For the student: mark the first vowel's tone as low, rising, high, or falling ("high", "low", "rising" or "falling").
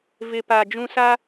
low